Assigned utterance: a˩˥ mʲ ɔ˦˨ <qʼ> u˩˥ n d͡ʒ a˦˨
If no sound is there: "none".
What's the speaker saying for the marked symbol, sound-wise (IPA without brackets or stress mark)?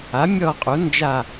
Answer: qʼ